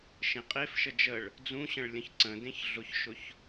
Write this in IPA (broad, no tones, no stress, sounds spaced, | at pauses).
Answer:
ʃ ẽ qʼ e f ʃ ə d͡ʒ ə ɭ | d͡z ũ ɕ ə̃ ɭ lʲ ə̃ ç ǀ ə̃ d ẽ ç ɮ ʊ ç ʃ ʊ ç